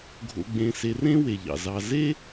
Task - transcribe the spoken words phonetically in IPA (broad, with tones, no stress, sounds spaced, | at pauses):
ɡʱ o̰˨ ɡ͡b ẽ˨ s e˨ r ẽ˦ w e˩ ʎ ɑ̰˩ z ɑ˨ z e˥